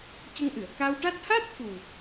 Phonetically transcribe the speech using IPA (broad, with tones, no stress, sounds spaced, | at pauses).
c ə˧ ŋ ʔ ɨ˨˩˨ ə̯ k a˧ w ʈ a˦˥ t̚ h a˦˥ t̚ f u˨˩